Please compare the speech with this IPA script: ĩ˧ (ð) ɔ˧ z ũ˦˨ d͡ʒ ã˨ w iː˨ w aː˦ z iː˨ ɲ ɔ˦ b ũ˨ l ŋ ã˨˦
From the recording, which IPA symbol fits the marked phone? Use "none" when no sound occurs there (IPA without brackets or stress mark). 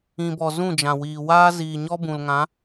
b